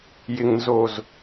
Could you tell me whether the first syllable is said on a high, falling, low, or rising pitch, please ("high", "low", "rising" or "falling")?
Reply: low